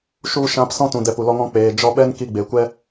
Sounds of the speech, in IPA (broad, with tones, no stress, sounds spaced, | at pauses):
ʃ u˧ ʃ ã˧ p s ɔ̃˦ t ũ˨ d ɛ˧ p u˨ l ɔ˦ ŋ ɔ̃˦ k͡p eː˨ d͡ʒ ɔ˧ ɓ ɛ˦ n k i˧ ɡ͡b e˨ kʷ ɛ˦